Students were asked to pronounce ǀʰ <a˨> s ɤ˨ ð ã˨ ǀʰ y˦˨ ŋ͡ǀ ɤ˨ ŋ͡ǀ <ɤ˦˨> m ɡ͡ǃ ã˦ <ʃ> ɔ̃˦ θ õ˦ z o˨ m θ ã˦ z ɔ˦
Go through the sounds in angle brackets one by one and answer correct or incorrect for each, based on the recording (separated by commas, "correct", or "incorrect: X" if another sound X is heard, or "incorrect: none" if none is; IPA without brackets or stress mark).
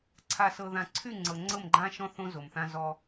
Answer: correct, correct, correct